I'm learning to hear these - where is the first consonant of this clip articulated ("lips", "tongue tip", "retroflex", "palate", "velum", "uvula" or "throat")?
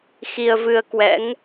velum